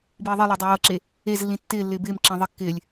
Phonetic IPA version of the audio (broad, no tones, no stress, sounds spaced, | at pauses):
b iː ðˤ i lˠ ɪː dˤ e w ɤ ǁ e | e z lː ĩ tː ɪː lː ɪː b ɪː m ǁ ẽ ðˤ ɪ kː ɪː lʲ